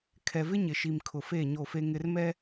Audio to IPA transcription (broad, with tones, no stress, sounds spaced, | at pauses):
kʰ ɛ˨ v ɪ˦ ɲ ɪ˨ ʃ i˨ m kʰ ʊ˨ f eː˦˨ ɲ o˦˨ f e˦ ŋ ɪ˦ r m ɛ˦